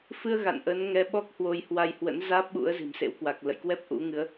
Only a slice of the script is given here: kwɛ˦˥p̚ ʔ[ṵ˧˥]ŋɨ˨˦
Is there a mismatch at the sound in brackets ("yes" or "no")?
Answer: no